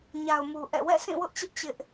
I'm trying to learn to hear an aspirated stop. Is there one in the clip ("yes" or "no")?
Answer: no